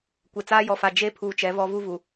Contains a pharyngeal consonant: no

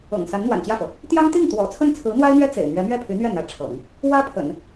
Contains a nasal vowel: no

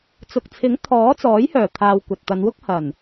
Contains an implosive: no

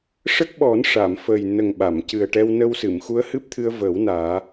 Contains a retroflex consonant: yes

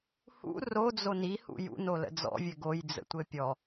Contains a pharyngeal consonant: no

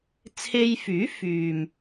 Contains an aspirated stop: yes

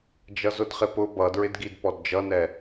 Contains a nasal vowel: no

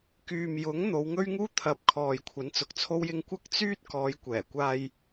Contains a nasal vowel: no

